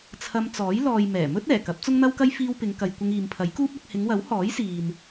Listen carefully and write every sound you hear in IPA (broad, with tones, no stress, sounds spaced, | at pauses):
t͡sʰ ɐ˧ m t͡s ɔː˨˥ j l ɔː˨ j m ɛː˨˩ m ɵ˥ t̚ ɛː˨˩ k ɐ˨˥ p̚ t͡s ʊ˥ ŋ n̪ ɐ˥ w k ɐ˥ j f iː˥ w p ɪ˨˧ ŋ k ɐ˨ j kʷ ɪ˧ ŋ iː˨ m pʰ ɐ˨˥ j k uː˥ p̚ ɐ˧ k̚ h ɪ˨˧ ŋ w ɐ˨˥ w h ɔː˨˥ j s iː˨ n